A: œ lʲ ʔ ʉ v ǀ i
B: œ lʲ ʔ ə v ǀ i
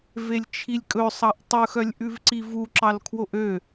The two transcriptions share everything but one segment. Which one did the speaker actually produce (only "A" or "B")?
A